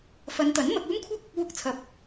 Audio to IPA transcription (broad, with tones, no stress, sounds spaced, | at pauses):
f ɐ˨˧ n t̪ ɐ˨˥ n m ɐ˧ k̚ uː˥ m kʷʰ ɐ˥ k̚ | w ʊ˧ k̚ t͡sʰ ɐ˨ p̚